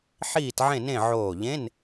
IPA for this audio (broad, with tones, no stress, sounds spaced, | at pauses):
ħ iː˥˨ t ʕ ẽ˥˨ n ẽ˥˨ ʕ oː˧˩ ʎ ẽ˧˥˧ n